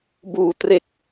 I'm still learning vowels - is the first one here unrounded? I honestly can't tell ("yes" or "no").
no